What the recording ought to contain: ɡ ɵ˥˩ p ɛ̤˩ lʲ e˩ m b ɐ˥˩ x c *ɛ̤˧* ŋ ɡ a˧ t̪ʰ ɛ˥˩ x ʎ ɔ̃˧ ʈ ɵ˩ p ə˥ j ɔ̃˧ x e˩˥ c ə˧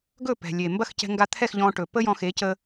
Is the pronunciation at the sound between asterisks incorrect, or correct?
correct